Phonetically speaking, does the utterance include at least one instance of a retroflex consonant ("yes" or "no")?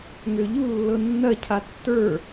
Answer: no